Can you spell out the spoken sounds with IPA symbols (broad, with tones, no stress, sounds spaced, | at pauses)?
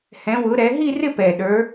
h ɛ̃˨˦ w ʊ˨˦ ɾ ɛ˨˦ ɦ i˥˧ r ɪ˥˧ p ɛ˨˩ ɗ ə˞˨˦